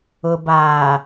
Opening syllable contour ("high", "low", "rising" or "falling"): low